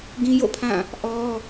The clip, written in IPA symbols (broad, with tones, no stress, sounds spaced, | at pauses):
ɡ ĩ˦ j o̰˦˨ pʰ ã˦˨ | ʔ ɔ˦